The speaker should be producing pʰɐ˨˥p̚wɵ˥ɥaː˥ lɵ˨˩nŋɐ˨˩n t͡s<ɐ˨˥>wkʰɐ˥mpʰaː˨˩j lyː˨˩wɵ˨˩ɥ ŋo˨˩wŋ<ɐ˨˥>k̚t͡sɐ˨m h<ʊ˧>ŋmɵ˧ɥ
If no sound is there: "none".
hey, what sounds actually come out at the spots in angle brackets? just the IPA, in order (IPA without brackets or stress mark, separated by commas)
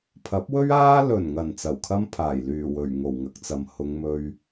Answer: ɐ˨˩, ɐ˨˥, ʊ˨˧